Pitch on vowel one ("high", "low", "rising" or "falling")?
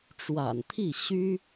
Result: low